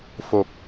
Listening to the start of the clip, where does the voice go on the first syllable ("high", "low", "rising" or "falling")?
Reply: low